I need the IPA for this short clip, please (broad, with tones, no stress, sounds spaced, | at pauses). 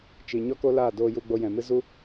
t͡ʃ i˨ ɲ ɔ˦ k o˦ l aː˦˨ d oː˧ j u˧ ɡ͡b o˧ j ɛ̃˨ m ɨ˦ z u˦